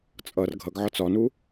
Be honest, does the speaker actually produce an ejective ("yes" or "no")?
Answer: yes